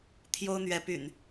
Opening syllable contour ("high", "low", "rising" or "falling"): high